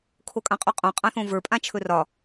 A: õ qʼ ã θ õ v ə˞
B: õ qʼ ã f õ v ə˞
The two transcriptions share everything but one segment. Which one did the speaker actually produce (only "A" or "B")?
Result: A